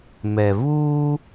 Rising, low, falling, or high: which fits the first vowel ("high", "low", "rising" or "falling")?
low